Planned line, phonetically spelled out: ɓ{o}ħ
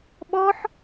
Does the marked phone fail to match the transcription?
yes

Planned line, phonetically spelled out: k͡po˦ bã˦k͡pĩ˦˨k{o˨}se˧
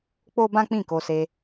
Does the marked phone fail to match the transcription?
yes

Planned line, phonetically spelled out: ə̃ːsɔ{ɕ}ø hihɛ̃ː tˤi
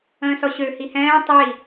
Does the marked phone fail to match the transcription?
no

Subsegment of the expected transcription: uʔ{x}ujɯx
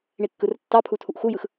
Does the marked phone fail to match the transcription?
no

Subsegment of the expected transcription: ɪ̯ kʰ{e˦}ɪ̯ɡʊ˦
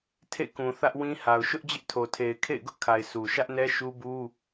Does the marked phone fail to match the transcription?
yes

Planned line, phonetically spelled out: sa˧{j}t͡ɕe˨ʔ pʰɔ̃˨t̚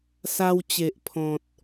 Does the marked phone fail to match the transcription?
yes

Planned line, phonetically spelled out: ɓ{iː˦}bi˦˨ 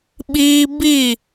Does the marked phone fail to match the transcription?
no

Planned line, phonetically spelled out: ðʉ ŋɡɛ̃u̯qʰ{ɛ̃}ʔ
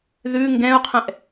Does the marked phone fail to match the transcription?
no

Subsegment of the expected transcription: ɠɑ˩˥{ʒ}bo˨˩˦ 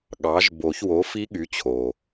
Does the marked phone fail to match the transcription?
no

